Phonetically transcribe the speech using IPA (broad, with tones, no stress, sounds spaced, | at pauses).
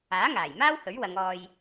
aː˨˥ ŋ aː˨˩ j m aː˥ w h ɵ˨˥ ɥ w ɐ˨˧ ŋ ɔː˧ j